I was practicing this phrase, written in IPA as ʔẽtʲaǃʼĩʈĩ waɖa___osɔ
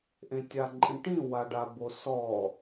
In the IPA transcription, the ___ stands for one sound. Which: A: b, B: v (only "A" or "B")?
A